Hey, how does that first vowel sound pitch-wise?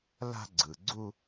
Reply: high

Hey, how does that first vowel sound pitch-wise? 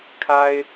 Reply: high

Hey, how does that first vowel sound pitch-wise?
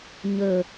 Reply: low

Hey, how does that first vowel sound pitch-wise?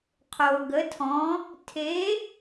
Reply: low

